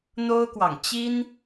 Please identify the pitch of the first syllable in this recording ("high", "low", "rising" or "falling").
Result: high